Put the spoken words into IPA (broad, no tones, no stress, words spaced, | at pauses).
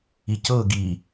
icɤ ɡi